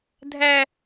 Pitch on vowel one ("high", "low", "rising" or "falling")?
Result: high